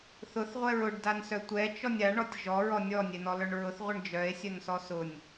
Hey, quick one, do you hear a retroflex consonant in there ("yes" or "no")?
yes